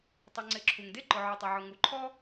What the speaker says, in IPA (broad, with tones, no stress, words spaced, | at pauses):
tˤɵ˨ŋ͡ǀɪ˨ǁʰu˩ŋde˥ ǃʊ˩ʕɔ˩tˤɐ˩ʕʊ˩ ŋu˩ǃʰɔ˥